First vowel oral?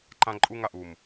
no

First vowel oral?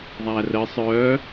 yes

